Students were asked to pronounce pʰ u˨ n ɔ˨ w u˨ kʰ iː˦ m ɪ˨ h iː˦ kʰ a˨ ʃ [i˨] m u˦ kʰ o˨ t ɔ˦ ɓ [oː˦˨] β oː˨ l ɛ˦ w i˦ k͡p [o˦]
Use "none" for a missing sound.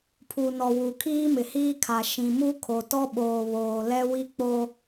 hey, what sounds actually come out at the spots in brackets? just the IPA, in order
ĩ˨, oː˨, o˦

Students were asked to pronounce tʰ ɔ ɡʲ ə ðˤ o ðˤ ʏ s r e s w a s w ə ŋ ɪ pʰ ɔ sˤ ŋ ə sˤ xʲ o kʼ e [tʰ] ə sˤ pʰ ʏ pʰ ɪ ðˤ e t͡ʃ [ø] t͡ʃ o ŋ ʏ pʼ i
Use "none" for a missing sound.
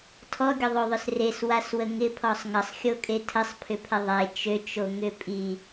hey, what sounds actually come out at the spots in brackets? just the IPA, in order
tʰ, ø

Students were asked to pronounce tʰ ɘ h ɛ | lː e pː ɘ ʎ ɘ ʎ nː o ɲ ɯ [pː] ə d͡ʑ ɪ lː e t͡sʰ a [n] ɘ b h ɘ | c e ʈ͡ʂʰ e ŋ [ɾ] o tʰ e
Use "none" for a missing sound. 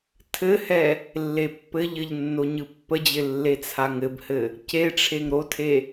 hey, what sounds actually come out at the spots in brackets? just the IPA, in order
pː, ŋ, ɾ

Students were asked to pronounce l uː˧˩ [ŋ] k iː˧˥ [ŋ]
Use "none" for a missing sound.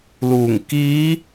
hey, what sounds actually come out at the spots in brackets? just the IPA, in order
ŋ, none

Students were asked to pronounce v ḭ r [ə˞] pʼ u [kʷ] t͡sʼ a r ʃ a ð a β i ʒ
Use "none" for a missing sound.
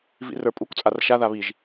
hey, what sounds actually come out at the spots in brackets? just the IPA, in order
ə˞, kʷ

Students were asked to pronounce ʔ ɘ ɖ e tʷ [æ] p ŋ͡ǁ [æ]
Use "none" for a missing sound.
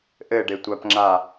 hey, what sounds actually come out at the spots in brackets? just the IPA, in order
a, a

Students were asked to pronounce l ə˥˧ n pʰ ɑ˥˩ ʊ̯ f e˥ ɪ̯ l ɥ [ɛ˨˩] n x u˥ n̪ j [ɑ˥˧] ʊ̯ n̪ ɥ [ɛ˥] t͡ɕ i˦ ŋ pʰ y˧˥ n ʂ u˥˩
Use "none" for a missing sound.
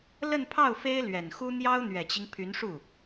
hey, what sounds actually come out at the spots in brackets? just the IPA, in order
ɛ˨˩, ɑ˥, ɛ˨˩

